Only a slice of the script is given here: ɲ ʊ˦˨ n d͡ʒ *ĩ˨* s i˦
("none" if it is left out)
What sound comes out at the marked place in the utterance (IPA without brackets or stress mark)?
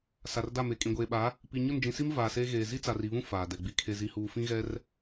ĩ˨